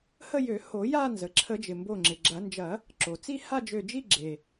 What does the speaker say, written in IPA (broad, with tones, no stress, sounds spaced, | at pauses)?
h ə˥˧ j ø˨˩˦ h o˨˩˦ j a˥˧ n z ə˩ ǁʰ ə˨˩˦ d͡ʒ ɪ˩ m b o˧˩ ŋ͡ǁ ɪ˩ ɡ͡ǁ ɐ˨˩˦ n d͡ʒ ɐ˨˩˦ | ǁ o˩ t͡s i˥˧ h a˥˧ d͡ʒ ø˧˩ d͡ʒ i˥˧ ɡ͡ǁ e˩